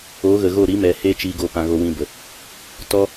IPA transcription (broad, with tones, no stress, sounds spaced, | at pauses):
o˨˦ ɣ ə˨ ɣ o˦˨ ɾ i˨˦ m ɛ˨ h eː˦ t͡ʃ i˧ ɡ o˧ p ã˧ ɣ o˧ w ĩ˧ b ə˨ | t ɔ˦